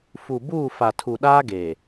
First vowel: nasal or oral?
oral